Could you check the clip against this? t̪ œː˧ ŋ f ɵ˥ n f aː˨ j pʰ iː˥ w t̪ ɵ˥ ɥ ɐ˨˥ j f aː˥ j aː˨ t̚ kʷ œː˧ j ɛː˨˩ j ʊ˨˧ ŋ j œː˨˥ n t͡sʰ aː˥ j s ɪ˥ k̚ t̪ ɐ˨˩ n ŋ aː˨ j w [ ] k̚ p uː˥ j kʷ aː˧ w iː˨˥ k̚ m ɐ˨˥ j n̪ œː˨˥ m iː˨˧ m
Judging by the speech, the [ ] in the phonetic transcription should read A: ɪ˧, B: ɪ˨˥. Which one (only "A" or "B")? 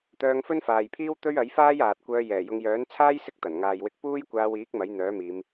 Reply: A